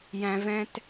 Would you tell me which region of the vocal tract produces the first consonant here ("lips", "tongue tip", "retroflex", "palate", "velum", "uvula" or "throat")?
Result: palate